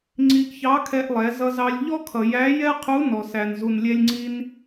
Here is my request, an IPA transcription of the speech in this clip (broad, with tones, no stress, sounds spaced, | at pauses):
ŋ͡ǀ i˧ ʔ ç ɑ˧˥ kʰ ɛ˧ ʔ lˠ ɛ˩˧ z ʌ˧ z ɑ˧ lʲ ʎ ɔ˥ kʰ ʌ˩ j æ˧˥ j ɛ˥ qʰ u˧˥ n ɔ˩ s æ˩ n z u˩ n lʲ ɛ˧ lʲ ŋ͡ǀ i˧ n